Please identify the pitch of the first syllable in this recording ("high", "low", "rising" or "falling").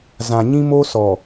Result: low